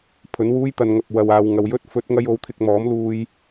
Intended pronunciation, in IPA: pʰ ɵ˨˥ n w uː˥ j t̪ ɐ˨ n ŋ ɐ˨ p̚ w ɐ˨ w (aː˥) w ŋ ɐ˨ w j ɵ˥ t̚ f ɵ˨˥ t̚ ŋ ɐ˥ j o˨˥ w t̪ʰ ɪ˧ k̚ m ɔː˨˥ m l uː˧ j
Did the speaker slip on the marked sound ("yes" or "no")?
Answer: yes